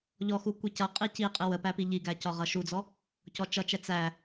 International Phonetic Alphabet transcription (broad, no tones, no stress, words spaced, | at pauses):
ʎɔxu kʷicʌ qʼiciqʼɪ wəpæpi ʎiɡæcɒʁʌ ʃud͡zɔ | cɔt͡ʃʌt͡ʃɛ t͡sæ